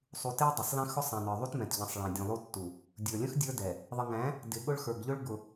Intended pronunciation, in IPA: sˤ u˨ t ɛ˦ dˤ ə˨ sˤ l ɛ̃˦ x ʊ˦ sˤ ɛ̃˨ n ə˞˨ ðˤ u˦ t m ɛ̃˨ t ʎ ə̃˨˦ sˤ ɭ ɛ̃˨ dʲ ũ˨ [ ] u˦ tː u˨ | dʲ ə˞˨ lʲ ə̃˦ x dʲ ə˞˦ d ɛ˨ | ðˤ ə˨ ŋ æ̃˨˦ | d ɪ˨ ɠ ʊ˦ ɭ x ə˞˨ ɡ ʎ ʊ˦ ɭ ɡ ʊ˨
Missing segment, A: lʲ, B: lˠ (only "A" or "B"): B